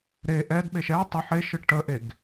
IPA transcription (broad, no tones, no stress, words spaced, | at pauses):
ɾe ʔɛdɓeʃ ɛ tˤə ħeʃɯ ʈəʔeɡ